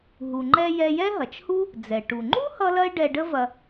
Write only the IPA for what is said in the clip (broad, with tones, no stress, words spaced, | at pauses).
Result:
ɦu˩ŋ͡ǃɛ˧ jɛ˧jɛ˥ ɦɐ˩t͡ʃhu˥ | d͡zɛ˩ ʈu˩ŋ͡ǃu˥ hʌ˥lɐ˥ɪ̯ ɖɛ˧ɖə˥vɐ˧